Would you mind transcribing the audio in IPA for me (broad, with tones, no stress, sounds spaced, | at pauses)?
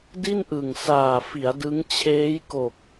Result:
d i˥˩ n ʔ ɯ˨˩ ŋ s aː˨˩ f i˩˦ a̯ d ɯ˦˥ ŋ t͡ɕʰ eː˦˥ j k o˨˩ k̚